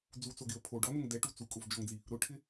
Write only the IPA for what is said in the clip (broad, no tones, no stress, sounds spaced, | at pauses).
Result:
d͡z u t͡s o ɡ ɪ ə̯ pʰ o ɖ ɔ n ʊ ŋ d ɛ ʈ u t͡s u kʼ ʊ v d͡ʒ ɔ ŋ d͡z i | ɾ ʊ ʈʰ ɪ